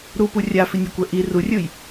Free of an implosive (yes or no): yes